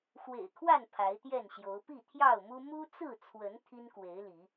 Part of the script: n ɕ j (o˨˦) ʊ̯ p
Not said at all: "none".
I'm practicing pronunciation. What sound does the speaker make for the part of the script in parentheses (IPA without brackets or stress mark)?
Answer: o˨˦